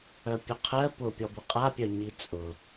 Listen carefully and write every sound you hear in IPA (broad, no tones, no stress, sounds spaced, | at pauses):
œ pʲ œ qʰ ɜ p ʊ pʲ ɔ b ʊ qʼ a pʲ œ ɲ i t͡sʼ ʊ